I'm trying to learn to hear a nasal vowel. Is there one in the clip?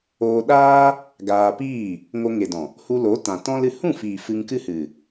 yes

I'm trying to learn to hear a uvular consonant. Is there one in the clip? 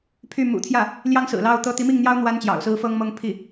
no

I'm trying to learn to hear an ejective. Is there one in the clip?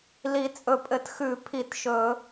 yes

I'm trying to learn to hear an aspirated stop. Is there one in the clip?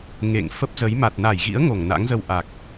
no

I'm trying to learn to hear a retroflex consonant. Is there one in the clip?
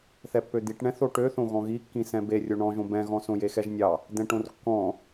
yes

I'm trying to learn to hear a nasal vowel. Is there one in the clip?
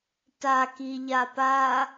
no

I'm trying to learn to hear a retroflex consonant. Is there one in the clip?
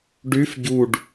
yes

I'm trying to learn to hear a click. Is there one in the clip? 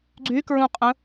yes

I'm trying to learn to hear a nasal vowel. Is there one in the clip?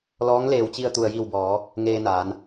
no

